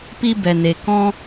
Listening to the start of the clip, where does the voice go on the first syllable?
high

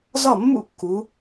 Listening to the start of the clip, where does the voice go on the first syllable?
falling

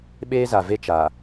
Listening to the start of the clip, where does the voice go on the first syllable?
high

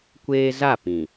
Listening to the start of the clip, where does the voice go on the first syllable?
high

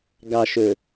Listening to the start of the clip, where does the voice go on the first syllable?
low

